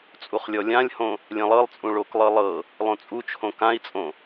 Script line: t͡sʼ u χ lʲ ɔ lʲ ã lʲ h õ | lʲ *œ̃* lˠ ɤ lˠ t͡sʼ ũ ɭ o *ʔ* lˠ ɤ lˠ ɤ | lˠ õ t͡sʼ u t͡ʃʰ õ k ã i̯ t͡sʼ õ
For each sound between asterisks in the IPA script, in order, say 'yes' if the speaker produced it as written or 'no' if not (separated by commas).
no, no